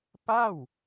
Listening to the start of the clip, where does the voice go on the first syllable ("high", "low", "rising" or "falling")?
falling